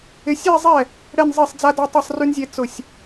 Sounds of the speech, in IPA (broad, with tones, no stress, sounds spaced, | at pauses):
ɪ˨˦ sʲ e˥˧ zˤ ɛ˥˩ | ɽ ɛ˥˧ n zˤ i˥˩ sˤ d͡z a˥ d a˥ tˤ ɨ˥˩ sˤ r y˥ n zʲ e˥˧ t͡s ʊ˥˩ sʲ